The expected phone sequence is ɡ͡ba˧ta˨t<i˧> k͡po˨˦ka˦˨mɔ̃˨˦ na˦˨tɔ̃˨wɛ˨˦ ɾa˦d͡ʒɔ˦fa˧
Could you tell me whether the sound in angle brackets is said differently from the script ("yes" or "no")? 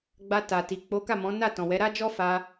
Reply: yes